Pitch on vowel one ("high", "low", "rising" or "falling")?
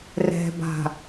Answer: low